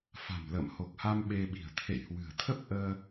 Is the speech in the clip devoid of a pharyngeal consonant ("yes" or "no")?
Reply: yes